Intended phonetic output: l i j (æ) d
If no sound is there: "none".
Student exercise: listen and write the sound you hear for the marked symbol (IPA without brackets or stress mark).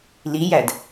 æ